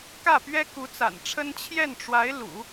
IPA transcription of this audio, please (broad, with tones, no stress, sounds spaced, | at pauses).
k ä˥˩ p ɥ ɛ˥ k u˧˥ t͡s a̰˨˩ n ʈ͡ʂʰ ə˥ n t͡ɕʰ j ɛ˥˩ n ʈ͡ʂ w a˧˥ ɪ̯ l ṵ˨˩˦